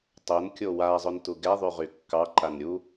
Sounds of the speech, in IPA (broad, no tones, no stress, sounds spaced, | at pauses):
tˤ o n kʲ o w a zˤ ɵ n t u ɡ ɛ ðˤ y ʁ y kː ɑ ǃ a n ɾʲ u